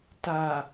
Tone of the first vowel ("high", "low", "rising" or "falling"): low